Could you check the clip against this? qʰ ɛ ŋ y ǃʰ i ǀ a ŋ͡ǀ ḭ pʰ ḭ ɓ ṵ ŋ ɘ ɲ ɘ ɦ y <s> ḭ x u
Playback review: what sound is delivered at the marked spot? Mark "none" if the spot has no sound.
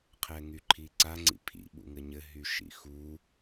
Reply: ʃ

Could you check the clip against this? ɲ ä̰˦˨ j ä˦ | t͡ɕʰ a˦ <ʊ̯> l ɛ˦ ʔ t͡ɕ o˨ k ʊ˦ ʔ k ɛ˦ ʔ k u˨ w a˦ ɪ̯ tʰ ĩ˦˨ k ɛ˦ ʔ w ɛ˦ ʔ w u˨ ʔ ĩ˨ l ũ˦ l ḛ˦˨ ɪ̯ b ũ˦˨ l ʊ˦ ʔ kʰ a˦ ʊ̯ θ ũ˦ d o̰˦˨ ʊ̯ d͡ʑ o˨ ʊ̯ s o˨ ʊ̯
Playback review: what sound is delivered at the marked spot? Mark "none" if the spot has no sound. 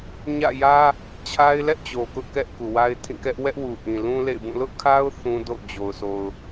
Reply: ɪ̯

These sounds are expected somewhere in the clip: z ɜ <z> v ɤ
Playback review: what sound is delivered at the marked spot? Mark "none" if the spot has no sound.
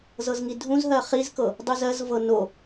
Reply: z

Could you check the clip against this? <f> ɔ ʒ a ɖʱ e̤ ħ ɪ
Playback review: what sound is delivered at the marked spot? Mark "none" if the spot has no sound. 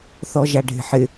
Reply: θ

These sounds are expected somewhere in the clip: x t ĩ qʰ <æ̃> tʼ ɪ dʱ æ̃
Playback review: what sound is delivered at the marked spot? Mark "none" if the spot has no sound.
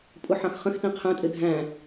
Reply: ɛ̃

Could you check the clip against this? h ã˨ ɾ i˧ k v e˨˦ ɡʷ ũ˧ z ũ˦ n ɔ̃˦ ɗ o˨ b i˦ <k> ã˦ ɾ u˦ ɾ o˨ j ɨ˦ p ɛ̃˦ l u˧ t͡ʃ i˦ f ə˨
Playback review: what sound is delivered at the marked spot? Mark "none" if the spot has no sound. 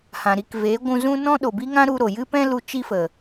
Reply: ŋ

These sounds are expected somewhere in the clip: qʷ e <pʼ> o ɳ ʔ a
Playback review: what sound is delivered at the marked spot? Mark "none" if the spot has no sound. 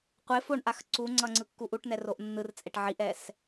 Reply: f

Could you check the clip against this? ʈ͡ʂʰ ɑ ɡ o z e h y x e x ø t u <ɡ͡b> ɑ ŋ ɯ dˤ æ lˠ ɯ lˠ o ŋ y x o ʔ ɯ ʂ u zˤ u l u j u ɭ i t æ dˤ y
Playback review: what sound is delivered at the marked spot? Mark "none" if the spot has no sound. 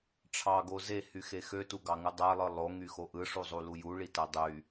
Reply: ɡ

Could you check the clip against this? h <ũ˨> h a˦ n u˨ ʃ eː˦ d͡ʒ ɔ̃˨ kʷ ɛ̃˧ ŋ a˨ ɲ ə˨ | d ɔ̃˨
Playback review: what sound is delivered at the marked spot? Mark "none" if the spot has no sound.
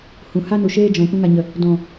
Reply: ũ˨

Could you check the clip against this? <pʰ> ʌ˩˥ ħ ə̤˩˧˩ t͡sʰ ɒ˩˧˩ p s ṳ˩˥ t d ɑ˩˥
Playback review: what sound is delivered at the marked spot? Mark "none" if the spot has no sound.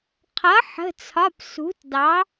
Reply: qʰ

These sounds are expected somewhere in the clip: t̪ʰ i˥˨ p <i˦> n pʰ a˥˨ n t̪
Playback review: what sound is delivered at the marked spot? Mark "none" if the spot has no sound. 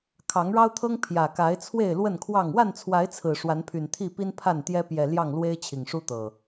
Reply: i˦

